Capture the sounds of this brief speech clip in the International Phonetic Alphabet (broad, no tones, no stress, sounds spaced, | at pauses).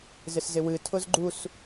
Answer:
z ɪ s z ɪ w ɨ tʰ ʊ z ɡ͡ǃ u s